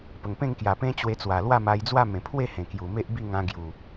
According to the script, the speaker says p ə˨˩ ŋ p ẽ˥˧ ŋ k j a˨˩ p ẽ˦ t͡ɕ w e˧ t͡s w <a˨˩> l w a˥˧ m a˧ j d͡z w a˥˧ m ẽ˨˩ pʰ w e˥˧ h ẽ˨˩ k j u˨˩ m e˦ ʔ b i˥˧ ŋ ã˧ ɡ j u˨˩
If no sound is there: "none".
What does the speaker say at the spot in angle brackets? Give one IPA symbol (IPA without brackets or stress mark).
a˨˩